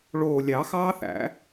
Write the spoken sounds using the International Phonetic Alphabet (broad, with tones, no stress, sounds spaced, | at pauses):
ɭ oː˨˩ lʲ ɑ˨˩˦ x ɑː˦˥ θ æ̰˨˩˦